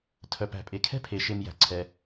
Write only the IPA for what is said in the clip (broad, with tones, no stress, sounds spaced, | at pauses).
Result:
tʰ œ˩ p æ̤˩ pʼ e˩ kʰ ɛ̤˥ pʰ e˩ ʃ e˨ m j æ̤˩ ǀʰ ɛ˩